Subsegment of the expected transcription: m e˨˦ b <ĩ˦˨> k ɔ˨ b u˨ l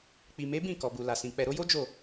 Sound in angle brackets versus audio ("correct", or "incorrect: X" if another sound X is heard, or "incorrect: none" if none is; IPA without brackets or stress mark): correct